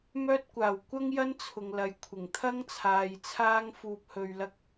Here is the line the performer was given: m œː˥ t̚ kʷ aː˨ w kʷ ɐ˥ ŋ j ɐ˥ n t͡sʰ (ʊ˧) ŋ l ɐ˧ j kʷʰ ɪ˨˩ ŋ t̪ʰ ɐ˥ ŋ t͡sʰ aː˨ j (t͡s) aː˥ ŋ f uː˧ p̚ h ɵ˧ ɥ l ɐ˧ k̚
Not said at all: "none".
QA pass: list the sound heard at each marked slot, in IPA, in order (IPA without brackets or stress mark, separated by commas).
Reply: ʊ˧, t͡sʰ